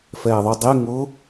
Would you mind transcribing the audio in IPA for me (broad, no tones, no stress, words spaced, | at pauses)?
fɛːðˤudˤe ŋʊ